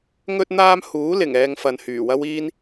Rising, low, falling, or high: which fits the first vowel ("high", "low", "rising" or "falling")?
high